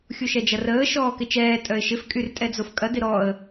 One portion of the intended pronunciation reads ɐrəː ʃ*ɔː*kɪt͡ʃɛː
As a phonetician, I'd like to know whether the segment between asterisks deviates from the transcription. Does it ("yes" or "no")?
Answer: no